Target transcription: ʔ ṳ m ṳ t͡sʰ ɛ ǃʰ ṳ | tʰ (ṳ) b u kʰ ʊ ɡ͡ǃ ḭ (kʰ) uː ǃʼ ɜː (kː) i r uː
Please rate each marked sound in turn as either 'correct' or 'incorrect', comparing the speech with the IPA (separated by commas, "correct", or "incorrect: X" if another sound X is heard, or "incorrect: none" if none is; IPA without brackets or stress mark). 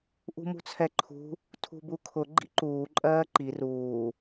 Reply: correct, incorrect: ǃ, incorrect: ǃ